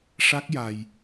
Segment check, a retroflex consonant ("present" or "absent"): present